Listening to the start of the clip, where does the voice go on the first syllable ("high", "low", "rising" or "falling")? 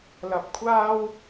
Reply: high